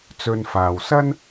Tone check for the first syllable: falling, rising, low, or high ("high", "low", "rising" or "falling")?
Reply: low